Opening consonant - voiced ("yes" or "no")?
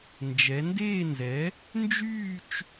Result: yes